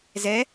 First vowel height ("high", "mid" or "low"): mid